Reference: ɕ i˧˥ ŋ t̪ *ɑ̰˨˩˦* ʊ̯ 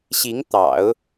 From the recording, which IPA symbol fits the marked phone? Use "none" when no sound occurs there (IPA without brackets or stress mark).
ɑ̰˨˩˦